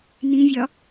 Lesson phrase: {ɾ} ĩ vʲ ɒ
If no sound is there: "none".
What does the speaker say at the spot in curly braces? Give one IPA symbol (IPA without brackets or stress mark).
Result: n